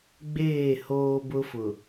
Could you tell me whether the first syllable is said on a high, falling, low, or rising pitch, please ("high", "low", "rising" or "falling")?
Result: falling